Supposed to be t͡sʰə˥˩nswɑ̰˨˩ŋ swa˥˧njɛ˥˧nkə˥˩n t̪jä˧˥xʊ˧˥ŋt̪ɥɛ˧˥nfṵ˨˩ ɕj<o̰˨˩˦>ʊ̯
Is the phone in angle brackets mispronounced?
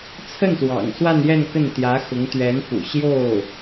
yes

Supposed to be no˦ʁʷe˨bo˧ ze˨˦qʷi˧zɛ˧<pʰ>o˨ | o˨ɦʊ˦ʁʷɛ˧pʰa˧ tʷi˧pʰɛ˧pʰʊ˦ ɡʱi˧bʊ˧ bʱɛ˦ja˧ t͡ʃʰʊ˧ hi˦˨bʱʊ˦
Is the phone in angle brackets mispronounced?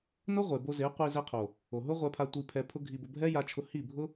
yes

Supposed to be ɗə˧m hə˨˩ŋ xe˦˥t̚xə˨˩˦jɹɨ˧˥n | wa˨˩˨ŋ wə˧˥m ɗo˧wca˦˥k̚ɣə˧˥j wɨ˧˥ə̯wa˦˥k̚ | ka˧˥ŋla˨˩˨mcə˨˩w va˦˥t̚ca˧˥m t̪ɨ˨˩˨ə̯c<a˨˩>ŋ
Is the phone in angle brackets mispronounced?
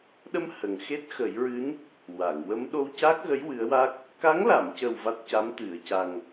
no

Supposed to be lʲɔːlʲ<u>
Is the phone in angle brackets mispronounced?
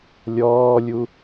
no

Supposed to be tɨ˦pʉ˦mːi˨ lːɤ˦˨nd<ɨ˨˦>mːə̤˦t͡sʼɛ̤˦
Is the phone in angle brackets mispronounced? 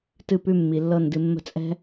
yes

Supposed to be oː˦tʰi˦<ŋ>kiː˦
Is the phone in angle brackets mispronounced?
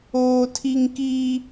no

